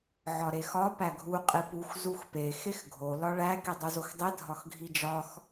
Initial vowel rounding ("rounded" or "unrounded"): rounded